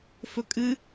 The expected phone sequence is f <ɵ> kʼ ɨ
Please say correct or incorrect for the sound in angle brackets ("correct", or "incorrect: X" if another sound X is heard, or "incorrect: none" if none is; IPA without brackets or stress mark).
correct